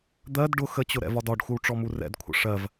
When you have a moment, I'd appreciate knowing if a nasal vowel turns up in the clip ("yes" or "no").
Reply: no